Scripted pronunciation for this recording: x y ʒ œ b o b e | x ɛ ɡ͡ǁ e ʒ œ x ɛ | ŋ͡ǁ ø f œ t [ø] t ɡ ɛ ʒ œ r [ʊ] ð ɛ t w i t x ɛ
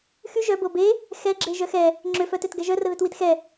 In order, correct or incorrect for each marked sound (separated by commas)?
correct, incorrect